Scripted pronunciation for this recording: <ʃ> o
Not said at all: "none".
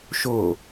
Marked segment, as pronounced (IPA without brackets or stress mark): ʃ